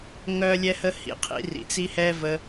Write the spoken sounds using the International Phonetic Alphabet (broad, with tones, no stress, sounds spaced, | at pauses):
ŋ œ˦ lʲ ɛ˦ h ə˦ h ḭ˧ qʰ ḭ˨˦ r ḭ˨ t͡s i˦ h ɛ˦ v ə˧